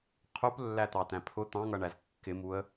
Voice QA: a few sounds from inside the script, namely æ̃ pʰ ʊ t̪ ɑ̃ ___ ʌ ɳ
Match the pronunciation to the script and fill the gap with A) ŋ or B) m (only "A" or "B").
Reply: A